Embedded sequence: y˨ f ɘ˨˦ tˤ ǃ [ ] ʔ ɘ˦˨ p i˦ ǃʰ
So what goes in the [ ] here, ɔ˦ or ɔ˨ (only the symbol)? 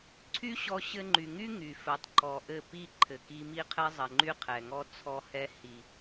ɔ˨